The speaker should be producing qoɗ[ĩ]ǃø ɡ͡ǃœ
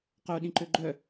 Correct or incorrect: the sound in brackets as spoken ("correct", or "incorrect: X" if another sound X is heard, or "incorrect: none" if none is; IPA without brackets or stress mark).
correct